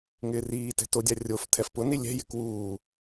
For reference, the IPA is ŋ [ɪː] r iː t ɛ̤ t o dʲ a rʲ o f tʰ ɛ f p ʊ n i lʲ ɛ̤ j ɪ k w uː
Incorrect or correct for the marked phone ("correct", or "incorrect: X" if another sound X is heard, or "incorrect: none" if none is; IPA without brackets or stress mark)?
correct